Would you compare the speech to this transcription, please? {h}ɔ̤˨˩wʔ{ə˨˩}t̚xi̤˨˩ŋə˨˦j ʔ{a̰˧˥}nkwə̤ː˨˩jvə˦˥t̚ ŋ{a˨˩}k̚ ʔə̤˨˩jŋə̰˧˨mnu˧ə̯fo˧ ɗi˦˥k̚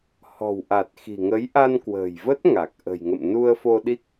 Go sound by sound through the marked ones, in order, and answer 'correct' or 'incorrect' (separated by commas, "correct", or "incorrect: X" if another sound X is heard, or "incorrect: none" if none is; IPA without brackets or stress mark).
correct, incorrect: a˨˩, incorrect: a˧, correct